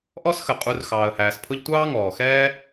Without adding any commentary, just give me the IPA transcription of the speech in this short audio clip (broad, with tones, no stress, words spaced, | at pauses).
ʔɔ˦sxə˩qʼu˨r xɑː˩ə̯hæː˩s pʰʊ˦ʎtʷɑː˥ ŋɔː˩xɛː˥